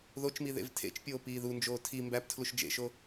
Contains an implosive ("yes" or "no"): no